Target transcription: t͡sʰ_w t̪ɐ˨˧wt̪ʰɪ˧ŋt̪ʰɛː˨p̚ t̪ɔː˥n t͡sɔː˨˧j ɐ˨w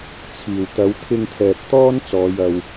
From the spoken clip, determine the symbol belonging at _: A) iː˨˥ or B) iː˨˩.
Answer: B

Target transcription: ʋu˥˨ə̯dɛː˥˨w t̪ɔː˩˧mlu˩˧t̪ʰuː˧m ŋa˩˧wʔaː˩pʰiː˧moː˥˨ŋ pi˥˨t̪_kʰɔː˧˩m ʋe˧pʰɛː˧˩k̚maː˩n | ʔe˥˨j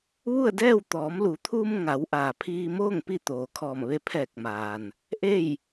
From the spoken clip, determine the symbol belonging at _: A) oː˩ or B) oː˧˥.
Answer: A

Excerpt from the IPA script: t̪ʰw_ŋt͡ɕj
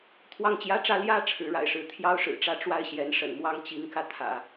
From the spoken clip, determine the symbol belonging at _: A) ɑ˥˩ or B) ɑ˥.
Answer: A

